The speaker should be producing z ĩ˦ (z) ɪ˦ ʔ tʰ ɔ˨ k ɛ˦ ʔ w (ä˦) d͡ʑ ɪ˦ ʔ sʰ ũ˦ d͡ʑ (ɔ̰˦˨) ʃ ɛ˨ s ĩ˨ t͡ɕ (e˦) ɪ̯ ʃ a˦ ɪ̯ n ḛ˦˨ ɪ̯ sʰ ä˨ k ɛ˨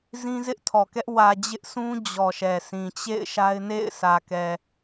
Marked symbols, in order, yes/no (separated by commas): yes, no, no, no